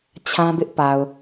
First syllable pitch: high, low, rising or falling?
high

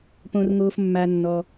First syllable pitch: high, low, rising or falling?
low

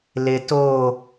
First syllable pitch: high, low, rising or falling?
low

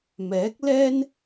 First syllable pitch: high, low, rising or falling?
rising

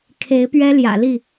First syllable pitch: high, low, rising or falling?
rising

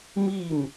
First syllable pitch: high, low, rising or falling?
falling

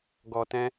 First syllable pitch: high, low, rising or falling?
low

